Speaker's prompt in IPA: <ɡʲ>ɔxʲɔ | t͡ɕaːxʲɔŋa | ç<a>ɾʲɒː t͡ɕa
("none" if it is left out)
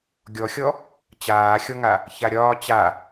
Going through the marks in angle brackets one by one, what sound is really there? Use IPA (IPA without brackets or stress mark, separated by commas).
ɡʲ, a